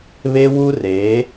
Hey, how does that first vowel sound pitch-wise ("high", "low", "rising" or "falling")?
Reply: high